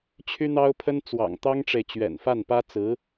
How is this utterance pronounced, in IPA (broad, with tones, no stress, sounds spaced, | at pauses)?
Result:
t͡ɕʰ y˥ n̪ ɑ˥ ʊ̯ pʰ ə˥ n t͡s w ɑ̰˨˩ ŋ t̪ ɑ˥ ŋ ʈ͡ʂ e˨ ɪ̯ t͡ɕ ɥ ɛ̰˨˩ n f a˥˩ n p ä˥ t͡s ɹ̩˧˥